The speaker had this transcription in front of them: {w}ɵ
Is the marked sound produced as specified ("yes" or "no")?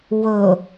yes